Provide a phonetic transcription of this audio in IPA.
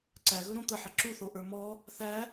ǀ æ ɣ ɵ ɾ õ t̪ ə ħ ə ǁ u θ o ʔ ə˞ m ɔ | θ æ

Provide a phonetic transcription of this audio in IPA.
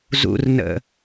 z ṵ r n ə̰

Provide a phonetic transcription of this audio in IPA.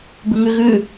b ʉ ŋ ʉ ɣ ʉ

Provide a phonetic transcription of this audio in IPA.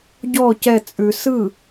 ɟ ɔ c ɛ t͡sʼ ʉ s ɯ

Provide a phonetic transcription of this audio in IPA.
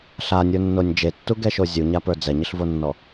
ɬ a nʲ ə˞ nː o nʲ d͡ʒ e tː u ɡ ɛ ʃ o zʲ u ɲ a p ə˞ d͡z ɛ ɲ ɪ ɬ v o nː ɔ

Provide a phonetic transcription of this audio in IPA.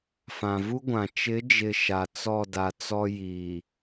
f ã˨ v u˦ ɡʷ ã˨ t͡ʃ ɪ˨˦ d͡ʒ ɪ˨ ʃ a˨ t͡s ɔ˦˨ d a˨ t͡s ɔ˦ j iː˨

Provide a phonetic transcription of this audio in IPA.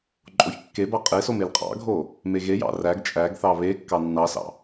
ǃʼ o ç kː e b ɑ qʼ e s o m e l qʼ ɑ̰ ɡʱ o | m e ɣ e j ɑ̰ r æ ɡ t͡ʃʼ æ ɡ θ ɑ β e kː ɑ nː ɑ s ɑ̰

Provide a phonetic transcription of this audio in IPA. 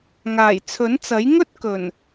ŋ aː˨˩ j t͡sʰ ɵ˨˥ n t͡s ɐ˨˥ j ŋ ɵ˥ t̚ k ɵ˨˩ n

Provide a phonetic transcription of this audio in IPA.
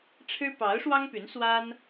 ʈ͡ʂʰ ɻ̩˥ p ɑ˧˥ ʊ̯ ʂ w ɑ˥ ŋ p y˧˥ n s w a˥ n

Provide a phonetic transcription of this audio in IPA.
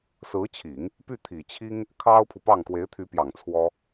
s ɹ̩˧˥ t͡ɕʰ i˨˩˦ ŋ | p y˥˩ t̪ʰ i˨˩ t͡ɕʰ i˥ ŋ | kʰ ɑ˥ ʊ̯ pʰ u˨ p ɑ˥˩ ŋ k w e˧˥ ɪ̯ t̪ʰ y˧˥ p j ɑ˨˩ ŋ t͡sʰ w ɔ˥

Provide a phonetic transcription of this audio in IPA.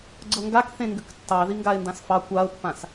ɡ͡ǀ ɤ ŋ ɡ a k θ ẽ ŋ ɡ ʏ k tː ɑ ð i ŋ ɡ a ɪ̯ n d ã s f ɑ kʷ a ʊ̯ pː ã s

